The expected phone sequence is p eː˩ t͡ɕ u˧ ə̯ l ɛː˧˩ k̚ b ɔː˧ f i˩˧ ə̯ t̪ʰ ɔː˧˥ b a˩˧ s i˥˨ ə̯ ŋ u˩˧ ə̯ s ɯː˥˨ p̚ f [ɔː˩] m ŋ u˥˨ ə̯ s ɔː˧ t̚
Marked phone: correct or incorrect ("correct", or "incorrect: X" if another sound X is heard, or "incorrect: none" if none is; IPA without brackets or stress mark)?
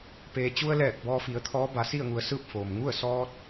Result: incorrect: oː˩